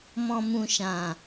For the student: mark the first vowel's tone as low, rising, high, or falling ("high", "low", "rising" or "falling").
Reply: low